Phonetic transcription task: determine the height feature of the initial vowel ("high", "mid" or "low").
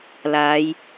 low